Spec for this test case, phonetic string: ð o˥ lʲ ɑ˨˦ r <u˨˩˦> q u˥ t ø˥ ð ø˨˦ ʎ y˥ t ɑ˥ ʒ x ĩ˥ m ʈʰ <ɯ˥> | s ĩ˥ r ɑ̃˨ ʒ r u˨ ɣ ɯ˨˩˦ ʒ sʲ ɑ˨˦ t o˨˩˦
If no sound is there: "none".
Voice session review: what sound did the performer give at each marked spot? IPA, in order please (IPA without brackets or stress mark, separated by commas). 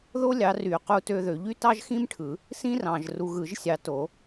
y˨˩˦, ɯ˨˩˦